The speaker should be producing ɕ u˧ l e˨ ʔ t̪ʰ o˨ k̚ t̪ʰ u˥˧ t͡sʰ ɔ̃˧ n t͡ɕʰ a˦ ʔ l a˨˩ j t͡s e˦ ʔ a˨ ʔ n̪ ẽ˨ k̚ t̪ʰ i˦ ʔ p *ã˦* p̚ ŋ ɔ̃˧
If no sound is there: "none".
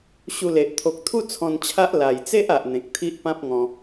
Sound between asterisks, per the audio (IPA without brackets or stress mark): ã˦